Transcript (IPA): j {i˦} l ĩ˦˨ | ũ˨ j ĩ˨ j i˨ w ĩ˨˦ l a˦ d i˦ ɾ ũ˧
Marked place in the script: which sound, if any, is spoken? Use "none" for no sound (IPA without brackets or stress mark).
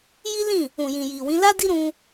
i˦